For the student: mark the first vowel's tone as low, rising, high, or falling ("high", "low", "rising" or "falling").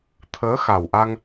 rising